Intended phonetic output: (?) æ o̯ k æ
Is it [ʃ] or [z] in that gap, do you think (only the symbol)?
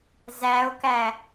z